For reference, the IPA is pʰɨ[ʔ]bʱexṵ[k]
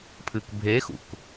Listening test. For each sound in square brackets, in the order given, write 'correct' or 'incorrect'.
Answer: incorrect: k, correct

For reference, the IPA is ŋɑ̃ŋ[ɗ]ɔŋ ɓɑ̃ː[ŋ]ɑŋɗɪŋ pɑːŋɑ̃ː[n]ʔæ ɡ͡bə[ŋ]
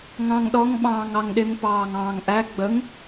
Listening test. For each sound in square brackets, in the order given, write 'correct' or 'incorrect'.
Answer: correct, correct, incorrect: ŋ, correct

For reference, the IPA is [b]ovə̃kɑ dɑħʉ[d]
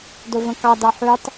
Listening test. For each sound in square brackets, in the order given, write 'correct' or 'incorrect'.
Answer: incorrect: d, incorrect: tˤ

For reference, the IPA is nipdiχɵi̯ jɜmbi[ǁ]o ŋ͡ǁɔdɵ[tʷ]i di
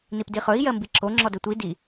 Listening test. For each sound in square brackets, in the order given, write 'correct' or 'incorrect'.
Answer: correct, correct

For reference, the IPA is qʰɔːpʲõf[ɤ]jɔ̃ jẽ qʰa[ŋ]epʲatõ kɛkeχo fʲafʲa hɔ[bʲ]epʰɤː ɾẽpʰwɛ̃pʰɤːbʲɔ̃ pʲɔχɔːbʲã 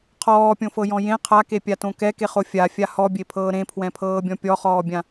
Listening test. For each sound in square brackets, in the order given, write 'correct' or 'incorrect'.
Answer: correct, incorrect: k, correct

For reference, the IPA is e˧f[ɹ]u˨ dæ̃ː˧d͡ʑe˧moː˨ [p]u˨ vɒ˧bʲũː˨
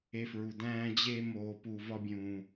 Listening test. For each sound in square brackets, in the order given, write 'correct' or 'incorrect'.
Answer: correct, correct

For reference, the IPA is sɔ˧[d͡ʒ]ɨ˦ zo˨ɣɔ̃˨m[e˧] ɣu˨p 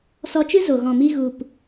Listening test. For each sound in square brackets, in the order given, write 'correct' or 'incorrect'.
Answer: incorrect: t͡ʃ, incorrect: i˧

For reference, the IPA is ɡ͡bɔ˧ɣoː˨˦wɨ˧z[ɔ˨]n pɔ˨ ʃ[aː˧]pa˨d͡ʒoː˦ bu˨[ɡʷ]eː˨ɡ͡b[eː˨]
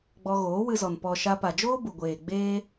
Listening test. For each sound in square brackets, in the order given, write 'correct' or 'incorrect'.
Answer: correct, incorrect: a˧, correct, incorrect: eː˦

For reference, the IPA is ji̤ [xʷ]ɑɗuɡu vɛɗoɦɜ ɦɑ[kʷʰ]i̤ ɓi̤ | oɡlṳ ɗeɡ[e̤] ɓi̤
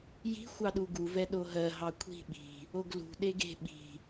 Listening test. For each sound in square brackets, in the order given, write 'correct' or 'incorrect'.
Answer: correct, correct, correct

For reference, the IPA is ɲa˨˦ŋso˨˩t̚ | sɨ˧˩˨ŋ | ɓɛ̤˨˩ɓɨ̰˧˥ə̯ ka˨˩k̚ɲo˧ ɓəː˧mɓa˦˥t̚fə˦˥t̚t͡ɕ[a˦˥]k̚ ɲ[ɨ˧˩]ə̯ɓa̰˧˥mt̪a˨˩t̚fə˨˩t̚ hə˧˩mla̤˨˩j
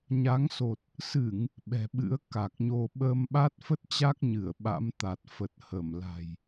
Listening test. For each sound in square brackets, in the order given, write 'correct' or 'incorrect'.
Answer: correct, correct

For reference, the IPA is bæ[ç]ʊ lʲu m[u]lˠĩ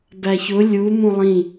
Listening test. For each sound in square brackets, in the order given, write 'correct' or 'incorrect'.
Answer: correct, incorrect: ũ

